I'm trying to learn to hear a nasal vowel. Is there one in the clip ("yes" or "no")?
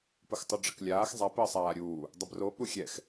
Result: no